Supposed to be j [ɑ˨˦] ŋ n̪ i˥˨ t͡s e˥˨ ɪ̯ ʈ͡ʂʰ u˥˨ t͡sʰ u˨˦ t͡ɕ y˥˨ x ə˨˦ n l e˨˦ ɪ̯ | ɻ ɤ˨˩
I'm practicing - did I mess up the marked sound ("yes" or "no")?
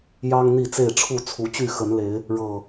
yes